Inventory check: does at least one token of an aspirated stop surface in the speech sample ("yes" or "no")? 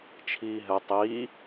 yes